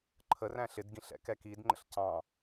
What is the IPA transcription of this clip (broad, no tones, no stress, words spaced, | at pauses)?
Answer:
ǃʰəræ̃ɬ ɪdɡĩɬ ɛ̰kɛkidŋ͡ǃə̰ɬ cɑ̃